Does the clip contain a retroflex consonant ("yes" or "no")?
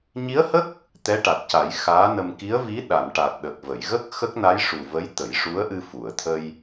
yes